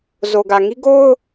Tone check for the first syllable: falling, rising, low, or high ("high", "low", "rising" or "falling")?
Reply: low